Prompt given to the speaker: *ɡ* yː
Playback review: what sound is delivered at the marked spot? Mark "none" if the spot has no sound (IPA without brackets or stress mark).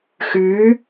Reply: x